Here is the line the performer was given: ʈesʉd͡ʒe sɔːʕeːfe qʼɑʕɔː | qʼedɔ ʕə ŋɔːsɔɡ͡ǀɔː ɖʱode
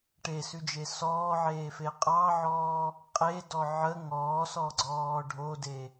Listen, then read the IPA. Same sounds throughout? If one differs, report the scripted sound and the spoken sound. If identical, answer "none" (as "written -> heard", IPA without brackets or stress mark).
none